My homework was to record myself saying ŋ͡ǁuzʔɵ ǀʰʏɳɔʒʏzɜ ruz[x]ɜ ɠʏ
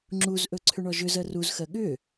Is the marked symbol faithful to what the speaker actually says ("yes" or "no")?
yes